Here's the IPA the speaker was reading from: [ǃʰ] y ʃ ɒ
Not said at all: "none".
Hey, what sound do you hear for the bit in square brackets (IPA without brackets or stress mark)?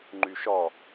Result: ŋ͡ǃ